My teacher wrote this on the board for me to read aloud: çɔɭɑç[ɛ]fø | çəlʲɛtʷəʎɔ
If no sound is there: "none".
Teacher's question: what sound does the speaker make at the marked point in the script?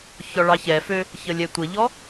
ɛ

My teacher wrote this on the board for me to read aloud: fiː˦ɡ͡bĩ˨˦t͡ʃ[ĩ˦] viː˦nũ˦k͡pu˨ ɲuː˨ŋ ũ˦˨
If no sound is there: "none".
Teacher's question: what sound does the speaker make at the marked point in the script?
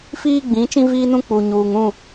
ĩ˦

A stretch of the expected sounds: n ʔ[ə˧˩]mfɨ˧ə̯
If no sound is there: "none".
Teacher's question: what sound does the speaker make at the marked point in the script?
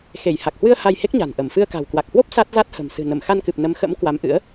ə˧˩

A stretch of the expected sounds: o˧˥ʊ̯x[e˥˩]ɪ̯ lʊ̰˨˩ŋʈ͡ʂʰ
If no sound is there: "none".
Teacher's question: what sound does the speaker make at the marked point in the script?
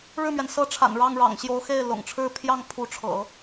e˥˩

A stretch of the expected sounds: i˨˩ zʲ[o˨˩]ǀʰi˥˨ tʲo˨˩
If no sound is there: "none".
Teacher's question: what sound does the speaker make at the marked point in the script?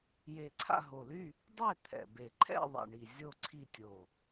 o˥˨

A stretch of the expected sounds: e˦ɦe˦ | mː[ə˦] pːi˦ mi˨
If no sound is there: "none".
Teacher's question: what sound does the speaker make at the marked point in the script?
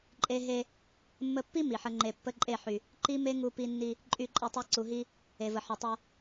ə˦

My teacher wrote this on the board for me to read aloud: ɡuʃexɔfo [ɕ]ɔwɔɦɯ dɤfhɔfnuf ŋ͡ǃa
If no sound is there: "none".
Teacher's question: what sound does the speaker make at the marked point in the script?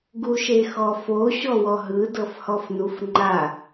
ɕ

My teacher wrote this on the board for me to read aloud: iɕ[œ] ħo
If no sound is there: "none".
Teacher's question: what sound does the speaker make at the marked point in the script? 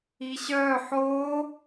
œ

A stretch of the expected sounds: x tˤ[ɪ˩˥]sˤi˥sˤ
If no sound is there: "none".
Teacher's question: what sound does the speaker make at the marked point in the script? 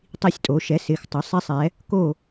ɪ˩˥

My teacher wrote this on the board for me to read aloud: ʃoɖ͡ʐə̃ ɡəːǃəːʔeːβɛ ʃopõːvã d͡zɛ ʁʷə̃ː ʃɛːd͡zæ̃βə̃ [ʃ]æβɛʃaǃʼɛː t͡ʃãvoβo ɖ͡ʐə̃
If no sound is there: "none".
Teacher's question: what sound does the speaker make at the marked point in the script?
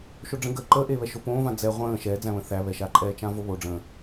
θ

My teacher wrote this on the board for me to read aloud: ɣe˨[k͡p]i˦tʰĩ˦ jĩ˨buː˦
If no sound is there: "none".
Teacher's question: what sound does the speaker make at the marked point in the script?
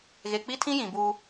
k͡p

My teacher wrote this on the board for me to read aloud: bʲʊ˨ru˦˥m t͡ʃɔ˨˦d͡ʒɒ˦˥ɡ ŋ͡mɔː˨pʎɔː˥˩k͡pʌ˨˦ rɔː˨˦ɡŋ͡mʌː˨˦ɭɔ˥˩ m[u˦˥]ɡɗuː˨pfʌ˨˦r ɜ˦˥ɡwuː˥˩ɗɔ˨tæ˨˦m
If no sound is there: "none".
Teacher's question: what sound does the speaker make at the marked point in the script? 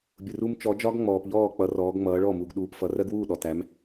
u˨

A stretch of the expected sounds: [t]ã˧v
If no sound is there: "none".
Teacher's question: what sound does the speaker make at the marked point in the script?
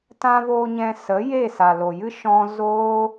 t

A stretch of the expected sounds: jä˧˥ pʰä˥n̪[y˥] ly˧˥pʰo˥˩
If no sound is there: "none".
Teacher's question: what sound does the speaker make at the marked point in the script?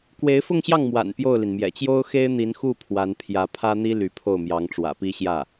i˥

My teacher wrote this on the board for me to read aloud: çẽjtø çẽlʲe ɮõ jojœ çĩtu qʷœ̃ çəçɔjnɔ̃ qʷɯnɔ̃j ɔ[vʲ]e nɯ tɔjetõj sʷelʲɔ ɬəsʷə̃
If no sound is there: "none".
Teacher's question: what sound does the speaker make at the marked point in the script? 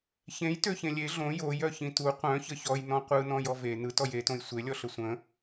v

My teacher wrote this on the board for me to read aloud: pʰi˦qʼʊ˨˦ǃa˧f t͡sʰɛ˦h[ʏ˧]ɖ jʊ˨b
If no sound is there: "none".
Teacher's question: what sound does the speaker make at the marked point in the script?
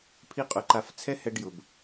ɛ˧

